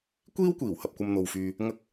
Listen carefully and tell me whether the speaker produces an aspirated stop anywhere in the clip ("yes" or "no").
no